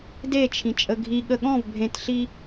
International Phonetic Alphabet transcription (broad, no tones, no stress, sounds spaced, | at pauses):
d e t͡ʃʰ ĩ t͡ʃʼ ə ɡʱ i ɠ ə ɠ ɔ̃ v bʱ ẽ t ɬ i